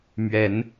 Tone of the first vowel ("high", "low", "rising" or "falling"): rising